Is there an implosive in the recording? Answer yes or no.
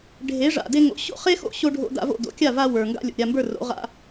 no